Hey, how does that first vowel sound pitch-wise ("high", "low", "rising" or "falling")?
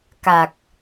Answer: low